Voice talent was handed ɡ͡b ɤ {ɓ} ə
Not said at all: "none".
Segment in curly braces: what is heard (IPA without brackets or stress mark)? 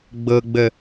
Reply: ɡ͡b